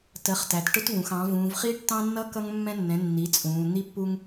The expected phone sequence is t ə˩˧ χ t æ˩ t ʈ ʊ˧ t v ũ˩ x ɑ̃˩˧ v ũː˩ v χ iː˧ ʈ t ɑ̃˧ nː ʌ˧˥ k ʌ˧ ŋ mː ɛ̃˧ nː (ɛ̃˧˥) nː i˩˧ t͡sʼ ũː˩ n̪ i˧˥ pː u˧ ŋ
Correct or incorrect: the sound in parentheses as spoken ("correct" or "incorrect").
incorrect